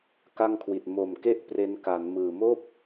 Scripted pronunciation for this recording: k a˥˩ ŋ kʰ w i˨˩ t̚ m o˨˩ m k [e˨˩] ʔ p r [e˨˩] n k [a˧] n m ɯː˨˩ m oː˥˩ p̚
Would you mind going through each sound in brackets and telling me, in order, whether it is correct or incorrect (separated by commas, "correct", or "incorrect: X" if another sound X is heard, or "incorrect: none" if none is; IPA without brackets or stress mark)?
incorrect: e˥˩, incorrect: e˦˥, incorrect: a˩˦